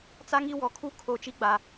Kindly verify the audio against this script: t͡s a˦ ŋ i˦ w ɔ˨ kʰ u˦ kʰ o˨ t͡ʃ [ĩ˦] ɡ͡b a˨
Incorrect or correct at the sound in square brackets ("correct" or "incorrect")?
incorrect